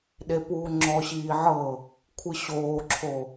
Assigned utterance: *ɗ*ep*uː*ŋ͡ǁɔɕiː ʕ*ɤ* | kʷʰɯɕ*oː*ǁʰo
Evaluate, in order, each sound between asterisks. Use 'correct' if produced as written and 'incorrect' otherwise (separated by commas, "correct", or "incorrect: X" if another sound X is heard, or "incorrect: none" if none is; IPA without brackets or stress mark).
correct, correct, correct, correct